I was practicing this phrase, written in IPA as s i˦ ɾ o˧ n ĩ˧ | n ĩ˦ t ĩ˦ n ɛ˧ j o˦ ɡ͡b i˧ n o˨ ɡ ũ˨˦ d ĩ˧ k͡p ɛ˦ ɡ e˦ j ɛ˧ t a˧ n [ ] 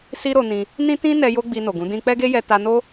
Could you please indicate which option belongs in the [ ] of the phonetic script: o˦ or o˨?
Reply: o˦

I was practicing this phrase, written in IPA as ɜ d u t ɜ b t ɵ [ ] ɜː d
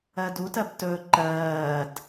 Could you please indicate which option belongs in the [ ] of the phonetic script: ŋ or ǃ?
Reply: ǃ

